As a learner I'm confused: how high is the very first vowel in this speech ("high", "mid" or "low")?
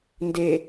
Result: mid